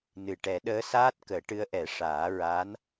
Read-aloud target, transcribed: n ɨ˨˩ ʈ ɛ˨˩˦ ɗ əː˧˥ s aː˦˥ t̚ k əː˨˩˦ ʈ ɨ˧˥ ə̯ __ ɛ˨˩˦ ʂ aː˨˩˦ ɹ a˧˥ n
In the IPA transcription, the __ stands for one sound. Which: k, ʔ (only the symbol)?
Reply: ʔ